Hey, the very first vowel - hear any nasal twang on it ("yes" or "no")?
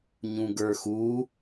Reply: yes